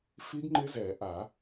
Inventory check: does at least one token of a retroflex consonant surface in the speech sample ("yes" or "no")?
no